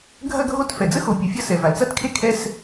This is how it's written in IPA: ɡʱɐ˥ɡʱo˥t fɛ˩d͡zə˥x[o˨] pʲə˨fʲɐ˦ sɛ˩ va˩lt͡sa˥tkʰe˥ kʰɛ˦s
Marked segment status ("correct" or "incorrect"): correct